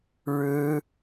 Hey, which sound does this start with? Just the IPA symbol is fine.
ɻ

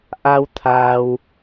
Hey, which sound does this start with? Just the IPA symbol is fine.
ʔ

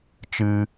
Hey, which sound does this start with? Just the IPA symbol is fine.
t͡ʃ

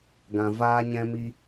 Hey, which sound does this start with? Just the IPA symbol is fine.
ɡ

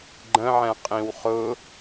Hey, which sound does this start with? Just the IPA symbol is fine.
ɡ͡ǃ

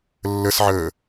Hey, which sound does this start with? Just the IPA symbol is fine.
lː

